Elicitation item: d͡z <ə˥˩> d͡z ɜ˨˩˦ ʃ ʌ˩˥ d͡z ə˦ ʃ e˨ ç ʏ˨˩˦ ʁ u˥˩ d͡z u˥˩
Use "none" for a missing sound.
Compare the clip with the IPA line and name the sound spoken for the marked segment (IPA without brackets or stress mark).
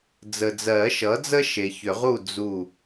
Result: ə˨